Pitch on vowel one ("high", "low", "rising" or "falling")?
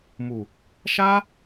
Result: low